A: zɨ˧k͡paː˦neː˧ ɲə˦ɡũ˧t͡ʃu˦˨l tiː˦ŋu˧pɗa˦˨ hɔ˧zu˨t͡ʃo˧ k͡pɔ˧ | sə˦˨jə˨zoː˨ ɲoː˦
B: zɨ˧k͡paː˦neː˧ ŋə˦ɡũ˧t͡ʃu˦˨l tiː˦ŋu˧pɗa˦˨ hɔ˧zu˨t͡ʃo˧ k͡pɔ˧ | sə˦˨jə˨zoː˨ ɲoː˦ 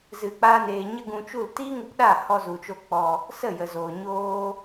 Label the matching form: A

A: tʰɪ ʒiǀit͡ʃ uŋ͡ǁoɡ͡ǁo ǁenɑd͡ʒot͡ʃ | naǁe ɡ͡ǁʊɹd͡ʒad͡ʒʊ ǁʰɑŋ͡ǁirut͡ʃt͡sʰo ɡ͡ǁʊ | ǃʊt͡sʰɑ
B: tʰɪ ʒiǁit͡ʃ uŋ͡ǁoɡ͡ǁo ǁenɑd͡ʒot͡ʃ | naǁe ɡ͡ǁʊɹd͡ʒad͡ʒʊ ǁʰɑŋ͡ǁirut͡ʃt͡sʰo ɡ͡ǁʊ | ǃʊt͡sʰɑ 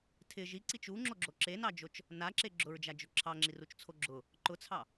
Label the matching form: A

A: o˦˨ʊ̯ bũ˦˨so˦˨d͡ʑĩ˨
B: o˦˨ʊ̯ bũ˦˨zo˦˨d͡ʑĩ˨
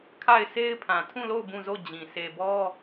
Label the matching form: B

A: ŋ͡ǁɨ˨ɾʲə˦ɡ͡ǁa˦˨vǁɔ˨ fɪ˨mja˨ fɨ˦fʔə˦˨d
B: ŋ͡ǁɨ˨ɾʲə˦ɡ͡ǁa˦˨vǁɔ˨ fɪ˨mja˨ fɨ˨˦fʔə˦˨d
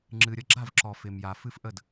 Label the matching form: A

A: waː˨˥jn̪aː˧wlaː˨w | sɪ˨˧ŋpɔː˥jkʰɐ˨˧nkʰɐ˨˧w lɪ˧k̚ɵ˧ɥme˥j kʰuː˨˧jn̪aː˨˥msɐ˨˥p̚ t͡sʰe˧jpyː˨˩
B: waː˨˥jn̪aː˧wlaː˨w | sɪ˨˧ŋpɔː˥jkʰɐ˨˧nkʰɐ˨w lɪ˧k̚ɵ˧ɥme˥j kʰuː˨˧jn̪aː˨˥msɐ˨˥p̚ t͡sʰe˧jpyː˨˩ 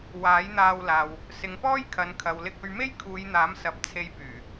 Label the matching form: B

